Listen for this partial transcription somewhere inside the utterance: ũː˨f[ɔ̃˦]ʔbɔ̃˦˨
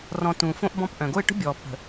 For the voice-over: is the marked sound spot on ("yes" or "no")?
no